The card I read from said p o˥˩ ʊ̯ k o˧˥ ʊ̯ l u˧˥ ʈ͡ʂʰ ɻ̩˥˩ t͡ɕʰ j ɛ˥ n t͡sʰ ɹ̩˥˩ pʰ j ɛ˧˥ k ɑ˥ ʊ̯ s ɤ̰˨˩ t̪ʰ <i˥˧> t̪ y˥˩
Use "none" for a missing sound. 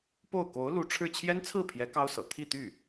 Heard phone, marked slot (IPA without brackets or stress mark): i˥˧